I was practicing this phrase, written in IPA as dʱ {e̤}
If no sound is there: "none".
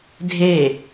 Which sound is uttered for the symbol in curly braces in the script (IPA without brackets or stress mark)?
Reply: e